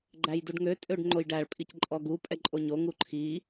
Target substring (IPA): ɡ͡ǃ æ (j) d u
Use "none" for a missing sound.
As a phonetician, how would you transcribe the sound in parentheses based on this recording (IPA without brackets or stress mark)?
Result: j